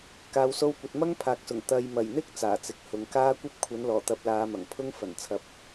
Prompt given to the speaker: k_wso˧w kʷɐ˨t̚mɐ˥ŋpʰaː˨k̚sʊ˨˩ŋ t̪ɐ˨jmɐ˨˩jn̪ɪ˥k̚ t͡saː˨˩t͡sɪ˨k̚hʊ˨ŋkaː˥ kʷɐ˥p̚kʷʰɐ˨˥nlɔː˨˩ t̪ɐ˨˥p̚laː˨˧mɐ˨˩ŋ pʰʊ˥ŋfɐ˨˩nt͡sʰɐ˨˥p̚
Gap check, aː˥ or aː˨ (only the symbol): aː˨